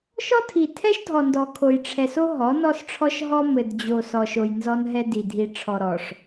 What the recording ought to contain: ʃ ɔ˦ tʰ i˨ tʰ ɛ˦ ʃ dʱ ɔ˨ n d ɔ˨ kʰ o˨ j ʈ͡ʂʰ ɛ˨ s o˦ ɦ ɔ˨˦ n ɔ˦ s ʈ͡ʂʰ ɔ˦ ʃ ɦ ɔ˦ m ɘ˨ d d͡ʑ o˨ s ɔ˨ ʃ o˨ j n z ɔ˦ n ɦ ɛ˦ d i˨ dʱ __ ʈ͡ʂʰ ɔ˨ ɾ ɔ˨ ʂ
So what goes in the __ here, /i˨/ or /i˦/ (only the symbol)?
i˨